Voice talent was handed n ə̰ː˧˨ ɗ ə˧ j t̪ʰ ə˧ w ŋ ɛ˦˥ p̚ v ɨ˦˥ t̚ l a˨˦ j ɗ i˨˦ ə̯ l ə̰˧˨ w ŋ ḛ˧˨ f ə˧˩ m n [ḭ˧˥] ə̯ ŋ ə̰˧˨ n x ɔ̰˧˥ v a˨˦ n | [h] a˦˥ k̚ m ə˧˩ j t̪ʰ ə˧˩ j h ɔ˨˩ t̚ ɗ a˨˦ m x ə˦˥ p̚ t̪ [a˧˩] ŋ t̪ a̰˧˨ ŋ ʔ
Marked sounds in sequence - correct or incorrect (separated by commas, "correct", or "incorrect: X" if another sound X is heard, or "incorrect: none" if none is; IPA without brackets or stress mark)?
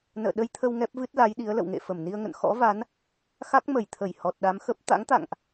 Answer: incorrect: i˧, incorrect: x, incorrect: a̰˧˥